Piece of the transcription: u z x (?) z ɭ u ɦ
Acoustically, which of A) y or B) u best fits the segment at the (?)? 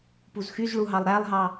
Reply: A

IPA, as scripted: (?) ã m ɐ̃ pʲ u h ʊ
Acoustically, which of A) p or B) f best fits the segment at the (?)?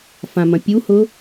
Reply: B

